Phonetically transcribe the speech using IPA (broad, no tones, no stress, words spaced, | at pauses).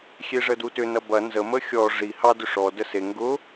xʲeʐədutʏ nɐbɐ nzə məxʲɔ ʐi hɑ dʏʂɔ dəse ŋɡʊ